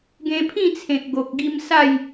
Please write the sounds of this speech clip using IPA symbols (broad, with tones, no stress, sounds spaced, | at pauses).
ɡ ẽ˧ pʰ ĩ˥˧ t͡sʰ ẽ˨ k̚ ɡ o˨ k̚ ɡ i˧ m s a˥˧ j